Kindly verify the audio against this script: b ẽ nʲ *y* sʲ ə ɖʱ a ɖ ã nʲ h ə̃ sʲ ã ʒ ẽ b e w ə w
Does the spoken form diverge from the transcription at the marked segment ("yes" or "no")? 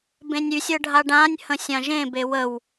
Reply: no